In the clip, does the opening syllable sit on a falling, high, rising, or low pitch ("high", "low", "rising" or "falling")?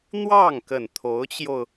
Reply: falling